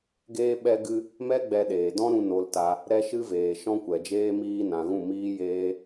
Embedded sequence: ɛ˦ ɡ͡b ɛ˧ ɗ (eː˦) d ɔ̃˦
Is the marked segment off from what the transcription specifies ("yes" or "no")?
yes